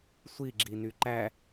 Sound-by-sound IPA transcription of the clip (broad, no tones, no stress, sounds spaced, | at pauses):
sʷ i ɡ͡ǁ i n y ǃ æ